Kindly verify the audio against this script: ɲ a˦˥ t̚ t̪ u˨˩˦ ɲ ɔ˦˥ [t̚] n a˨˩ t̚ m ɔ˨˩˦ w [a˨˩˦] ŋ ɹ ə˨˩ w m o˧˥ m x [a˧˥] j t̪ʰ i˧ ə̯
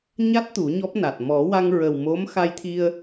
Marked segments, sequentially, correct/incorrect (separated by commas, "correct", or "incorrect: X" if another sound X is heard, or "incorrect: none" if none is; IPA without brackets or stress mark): incorrect: p̚, incorrect: a˧, incorrect: a˧